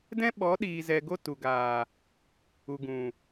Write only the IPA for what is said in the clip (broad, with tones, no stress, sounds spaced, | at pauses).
d ɛ̃˦ ɓ ɔ˨˦ ɗ iː˨ z ɛ˨ ɡ o˧ t u˨ ɡ aː˨ | u˨ ɡ ũ˨